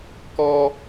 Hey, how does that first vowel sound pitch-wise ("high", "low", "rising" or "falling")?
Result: high